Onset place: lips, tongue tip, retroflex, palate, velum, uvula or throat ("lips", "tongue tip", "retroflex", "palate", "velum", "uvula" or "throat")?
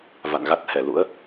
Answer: lips